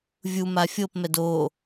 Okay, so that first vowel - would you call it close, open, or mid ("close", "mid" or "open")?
close